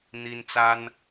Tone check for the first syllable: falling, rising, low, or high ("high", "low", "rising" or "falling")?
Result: high